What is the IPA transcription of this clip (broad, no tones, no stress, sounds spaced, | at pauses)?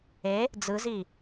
e | d͡z ɯ z i